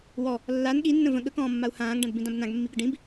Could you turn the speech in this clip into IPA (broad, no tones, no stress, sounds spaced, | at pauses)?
w ɔ | lː a n ɠ i nː ə̃ v ə̃ ɠ ə k ɔ̃ː mː a u̯ h ãː ŋ ɖ ã d b ĩ d ã b n ã ɡ mː i ɡ ə ɖ ĩ b